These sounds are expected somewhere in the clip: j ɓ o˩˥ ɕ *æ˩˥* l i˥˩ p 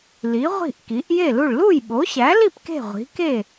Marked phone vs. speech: correct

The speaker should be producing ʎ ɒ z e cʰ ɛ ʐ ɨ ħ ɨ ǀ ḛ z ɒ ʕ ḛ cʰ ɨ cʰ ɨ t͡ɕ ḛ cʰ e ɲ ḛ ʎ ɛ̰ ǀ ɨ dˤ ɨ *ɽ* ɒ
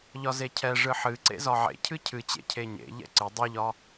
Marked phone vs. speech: incorrect: ʎ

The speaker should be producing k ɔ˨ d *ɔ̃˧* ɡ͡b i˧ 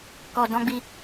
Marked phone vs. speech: correct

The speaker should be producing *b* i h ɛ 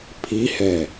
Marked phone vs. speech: incorrect: pʰ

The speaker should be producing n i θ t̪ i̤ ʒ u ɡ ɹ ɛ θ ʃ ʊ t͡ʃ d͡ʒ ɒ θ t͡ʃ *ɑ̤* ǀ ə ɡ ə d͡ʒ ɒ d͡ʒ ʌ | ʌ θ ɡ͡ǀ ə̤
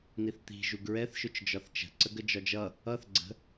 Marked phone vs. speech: incorrect: ə̤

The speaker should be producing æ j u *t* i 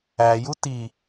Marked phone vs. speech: correct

